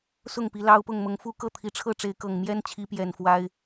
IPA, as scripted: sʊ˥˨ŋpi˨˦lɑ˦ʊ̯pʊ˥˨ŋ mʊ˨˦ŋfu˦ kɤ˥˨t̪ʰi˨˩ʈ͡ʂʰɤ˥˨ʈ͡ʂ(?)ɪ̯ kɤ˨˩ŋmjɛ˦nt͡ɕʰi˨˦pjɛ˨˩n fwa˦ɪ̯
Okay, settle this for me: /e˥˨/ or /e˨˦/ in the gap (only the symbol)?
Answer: e˨˦